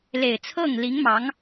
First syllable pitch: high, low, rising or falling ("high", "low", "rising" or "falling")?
low